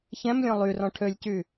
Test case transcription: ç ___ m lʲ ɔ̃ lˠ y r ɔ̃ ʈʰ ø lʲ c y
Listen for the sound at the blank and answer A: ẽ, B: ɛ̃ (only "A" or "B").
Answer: B